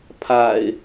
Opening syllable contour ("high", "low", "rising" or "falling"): low